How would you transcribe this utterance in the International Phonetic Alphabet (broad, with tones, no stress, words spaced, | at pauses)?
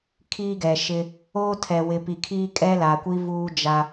kʰiː˦ɡɛ˨ʃɪ˦ | oː˦tʰɛ˨ wɪ˨pi˨kʰiː˦ kʼɛ˦la˨kʷi˦ vuː˦d͡ʒa˦